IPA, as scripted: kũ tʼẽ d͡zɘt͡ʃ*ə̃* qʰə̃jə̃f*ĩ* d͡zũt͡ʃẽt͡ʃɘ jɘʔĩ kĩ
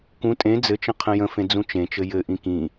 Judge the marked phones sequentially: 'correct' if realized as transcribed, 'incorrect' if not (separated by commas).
correct, incorrect